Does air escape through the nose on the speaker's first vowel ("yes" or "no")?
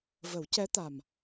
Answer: no